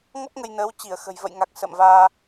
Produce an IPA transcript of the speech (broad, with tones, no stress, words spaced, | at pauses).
ŋɔ˦˥p̚ŋə˧jnəː˨˦w t͡ɕi˧˩ə̯xə̤˨˩jvə̰˧˨jŋa˨˩k̚ sə̰˧˨mvaː˧